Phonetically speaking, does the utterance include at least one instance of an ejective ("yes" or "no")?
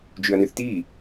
no